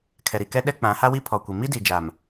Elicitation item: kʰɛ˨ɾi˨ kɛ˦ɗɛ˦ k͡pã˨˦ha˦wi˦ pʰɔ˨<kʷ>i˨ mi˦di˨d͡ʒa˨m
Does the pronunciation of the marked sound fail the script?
no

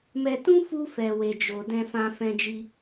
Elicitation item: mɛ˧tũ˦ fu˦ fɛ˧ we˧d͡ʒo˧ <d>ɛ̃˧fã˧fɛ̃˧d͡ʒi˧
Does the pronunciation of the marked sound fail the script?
no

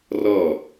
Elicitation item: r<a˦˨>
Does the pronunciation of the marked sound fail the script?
yes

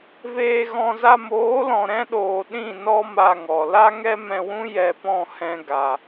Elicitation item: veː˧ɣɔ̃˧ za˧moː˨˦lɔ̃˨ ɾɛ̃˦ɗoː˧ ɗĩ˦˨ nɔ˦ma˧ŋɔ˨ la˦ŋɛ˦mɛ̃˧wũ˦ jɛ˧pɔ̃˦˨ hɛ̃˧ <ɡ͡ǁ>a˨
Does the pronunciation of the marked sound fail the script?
yes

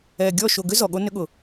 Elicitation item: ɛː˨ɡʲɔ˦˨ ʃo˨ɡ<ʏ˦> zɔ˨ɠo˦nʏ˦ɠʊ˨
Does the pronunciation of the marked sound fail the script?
no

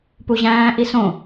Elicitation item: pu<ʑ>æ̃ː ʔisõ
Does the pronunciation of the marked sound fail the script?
no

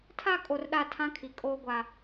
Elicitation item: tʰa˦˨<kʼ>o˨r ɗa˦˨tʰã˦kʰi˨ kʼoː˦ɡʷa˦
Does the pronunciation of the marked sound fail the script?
no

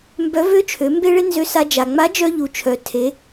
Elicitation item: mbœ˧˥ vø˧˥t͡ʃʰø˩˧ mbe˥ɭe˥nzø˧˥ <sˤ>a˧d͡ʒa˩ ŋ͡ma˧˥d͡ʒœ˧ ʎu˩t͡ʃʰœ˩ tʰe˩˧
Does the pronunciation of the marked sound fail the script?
yes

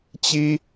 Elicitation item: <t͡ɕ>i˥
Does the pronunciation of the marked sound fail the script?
no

